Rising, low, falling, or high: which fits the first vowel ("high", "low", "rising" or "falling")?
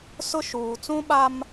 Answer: high